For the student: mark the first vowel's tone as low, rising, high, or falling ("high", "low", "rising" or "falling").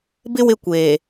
high